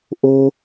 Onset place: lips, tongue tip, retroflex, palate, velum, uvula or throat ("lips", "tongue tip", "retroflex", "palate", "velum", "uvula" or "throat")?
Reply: throat